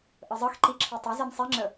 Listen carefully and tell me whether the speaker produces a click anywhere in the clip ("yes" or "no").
yes